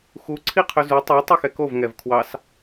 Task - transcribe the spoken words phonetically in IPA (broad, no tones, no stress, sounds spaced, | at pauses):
x u ǀʰ i qʰ ɵ z u tˤ u tˤ ʉ x ɛ k o v ŋ ɛ v kʰ w ɑ s